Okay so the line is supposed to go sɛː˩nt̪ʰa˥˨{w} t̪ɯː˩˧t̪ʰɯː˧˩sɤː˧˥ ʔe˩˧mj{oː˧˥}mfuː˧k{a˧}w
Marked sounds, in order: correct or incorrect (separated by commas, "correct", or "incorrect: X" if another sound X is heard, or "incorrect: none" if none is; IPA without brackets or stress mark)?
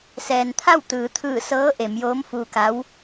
correct, correct, incorrect: a˧˥